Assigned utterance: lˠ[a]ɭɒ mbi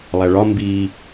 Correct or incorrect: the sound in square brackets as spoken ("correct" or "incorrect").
incorrect